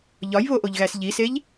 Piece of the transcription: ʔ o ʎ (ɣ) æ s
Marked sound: correct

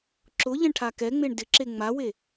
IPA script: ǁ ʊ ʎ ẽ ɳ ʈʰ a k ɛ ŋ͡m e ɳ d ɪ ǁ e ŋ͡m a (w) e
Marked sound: correct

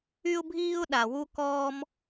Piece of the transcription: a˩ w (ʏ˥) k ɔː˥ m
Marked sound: incorrect: u˥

